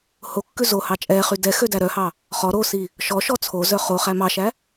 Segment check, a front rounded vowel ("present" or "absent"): present